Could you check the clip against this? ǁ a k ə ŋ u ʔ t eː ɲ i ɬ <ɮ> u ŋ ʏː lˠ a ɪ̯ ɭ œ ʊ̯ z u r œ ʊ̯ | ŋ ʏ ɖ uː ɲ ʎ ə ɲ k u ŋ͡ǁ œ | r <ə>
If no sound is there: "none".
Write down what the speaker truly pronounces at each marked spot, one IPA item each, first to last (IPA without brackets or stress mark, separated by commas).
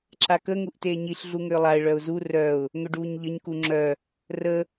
ɮ, ə